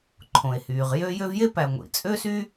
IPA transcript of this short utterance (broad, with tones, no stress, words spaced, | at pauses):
ǃʰõ˩e̯hyː˩ʁ jø˦ jø˦vje˥pæ˨ŋʷḭ˩ t͡sʼø˥sy˥